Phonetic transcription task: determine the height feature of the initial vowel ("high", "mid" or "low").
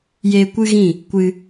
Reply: mid